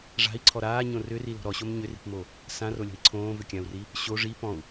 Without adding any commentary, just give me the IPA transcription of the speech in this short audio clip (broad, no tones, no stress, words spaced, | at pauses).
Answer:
ʐa̤i̯ǀʰɔ ɾaːɲõ rʏrilo̤ ɾɔɕom ɲʏri̤pmo | sãrolʲo̤i̯ ǀʰõːvʏkʲãu̯ri | ɕo ʐi pɔ̃u̯